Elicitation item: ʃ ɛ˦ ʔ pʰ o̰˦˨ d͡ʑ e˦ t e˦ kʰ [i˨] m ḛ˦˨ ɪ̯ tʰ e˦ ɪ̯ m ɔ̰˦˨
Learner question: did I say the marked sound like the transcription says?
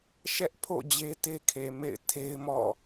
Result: no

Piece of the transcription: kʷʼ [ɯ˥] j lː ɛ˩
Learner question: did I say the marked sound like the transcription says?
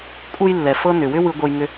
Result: no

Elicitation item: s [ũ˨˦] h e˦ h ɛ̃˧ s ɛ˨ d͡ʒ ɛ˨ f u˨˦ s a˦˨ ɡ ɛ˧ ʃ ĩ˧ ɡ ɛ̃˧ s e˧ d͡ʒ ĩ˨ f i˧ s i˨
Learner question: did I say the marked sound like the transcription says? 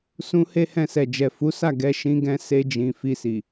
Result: no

